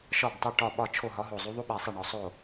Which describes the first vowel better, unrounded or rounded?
rounded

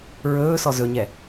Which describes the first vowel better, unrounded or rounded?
rounded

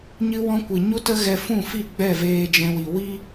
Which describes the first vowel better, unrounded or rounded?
unrounded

